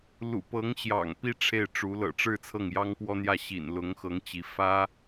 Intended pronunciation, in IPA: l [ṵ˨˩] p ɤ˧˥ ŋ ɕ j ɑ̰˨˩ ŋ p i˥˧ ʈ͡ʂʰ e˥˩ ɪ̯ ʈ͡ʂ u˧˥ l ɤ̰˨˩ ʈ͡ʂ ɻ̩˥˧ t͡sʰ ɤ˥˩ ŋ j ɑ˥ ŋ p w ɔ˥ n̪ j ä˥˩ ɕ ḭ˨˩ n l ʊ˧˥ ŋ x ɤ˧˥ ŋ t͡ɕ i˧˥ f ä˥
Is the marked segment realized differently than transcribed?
no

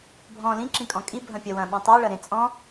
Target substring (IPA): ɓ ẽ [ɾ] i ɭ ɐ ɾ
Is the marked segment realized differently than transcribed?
yes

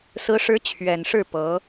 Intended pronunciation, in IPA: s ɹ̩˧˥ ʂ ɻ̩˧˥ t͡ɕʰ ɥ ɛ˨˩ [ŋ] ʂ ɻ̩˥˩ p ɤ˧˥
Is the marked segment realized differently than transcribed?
yes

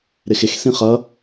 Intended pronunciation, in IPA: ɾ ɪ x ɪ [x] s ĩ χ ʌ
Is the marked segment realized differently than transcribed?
no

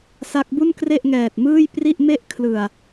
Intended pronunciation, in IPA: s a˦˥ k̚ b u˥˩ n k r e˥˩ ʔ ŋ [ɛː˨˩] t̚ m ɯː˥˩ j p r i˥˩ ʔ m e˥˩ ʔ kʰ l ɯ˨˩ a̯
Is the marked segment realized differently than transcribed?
no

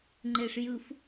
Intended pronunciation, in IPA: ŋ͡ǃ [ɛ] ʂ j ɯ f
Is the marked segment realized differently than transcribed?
yes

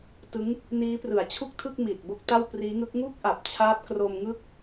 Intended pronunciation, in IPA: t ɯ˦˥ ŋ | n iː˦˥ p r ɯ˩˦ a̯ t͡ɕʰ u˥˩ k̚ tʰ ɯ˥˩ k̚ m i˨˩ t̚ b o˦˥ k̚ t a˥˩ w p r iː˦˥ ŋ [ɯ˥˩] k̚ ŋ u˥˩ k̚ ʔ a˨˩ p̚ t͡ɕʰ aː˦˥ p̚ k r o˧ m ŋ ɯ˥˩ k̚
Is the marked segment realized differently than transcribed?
yes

